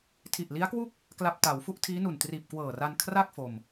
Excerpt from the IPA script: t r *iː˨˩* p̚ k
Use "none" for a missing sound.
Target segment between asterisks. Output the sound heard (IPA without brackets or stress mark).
iː˨˩